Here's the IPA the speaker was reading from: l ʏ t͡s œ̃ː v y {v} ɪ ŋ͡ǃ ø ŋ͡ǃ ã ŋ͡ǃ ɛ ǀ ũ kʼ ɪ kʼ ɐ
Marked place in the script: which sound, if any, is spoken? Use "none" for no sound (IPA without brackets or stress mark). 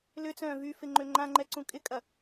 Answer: f